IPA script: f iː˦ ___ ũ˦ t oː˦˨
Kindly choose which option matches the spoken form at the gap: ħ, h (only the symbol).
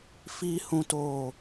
h